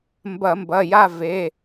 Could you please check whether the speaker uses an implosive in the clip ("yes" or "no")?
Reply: no